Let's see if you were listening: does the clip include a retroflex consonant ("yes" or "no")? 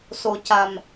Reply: no